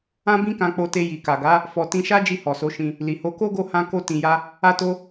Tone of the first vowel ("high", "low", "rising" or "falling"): high